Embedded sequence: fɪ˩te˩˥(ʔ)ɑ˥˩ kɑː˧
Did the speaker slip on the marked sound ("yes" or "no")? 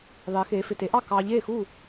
no